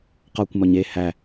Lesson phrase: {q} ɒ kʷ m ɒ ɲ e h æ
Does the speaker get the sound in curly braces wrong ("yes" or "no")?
no